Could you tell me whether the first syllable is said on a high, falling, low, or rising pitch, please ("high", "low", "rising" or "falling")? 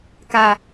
high